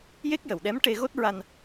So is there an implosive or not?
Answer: yes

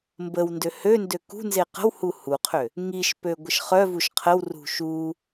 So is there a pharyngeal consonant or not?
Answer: no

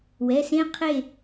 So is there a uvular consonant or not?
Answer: yes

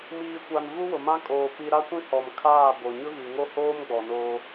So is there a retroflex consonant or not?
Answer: no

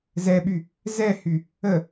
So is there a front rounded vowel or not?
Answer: yes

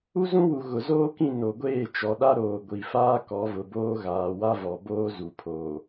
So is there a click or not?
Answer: no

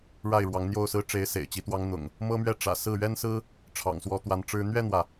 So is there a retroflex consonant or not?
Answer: yes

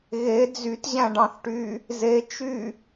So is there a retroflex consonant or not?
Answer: yes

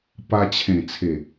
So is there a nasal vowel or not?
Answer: yes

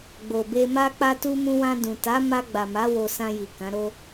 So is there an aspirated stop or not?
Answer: no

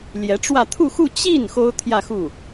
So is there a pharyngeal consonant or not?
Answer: no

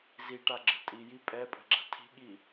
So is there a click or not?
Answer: yes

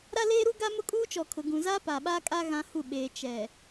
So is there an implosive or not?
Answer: yes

